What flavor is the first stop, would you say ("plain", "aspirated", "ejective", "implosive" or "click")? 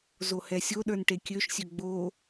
implosive